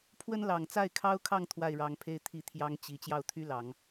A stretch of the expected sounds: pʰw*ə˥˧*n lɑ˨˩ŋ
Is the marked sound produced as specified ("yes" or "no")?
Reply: no